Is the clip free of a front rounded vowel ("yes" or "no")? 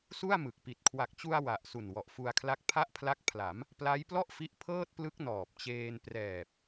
yes